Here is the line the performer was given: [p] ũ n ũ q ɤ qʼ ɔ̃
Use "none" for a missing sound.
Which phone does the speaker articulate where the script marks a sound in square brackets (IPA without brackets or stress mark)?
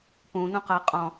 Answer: p